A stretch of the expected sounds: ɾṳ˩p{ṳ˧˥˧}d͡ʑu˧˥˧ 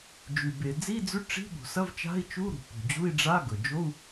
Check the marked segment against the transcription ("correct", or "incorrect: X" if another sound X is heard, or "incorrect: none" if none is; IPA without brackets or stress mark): incorrect: ṳ˩